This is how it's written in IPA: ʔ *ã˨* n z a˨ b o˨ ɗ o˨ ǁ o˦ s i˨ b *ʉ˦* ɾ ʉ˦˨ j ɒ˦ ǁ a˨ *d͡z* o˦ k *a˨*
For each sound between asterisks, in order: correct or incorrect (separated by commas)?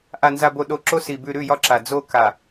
incorrect, incorrect, correct, correct